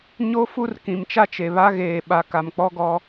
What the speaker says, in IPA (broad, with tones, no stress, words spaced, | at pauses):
ɲo˦ fu˦rkĩ˨mt͡ʃa˦t͡ʃe˨ βa˦ɣeː˨ɓa˨ ka˨mk͡pɔ˦ɡɔ˦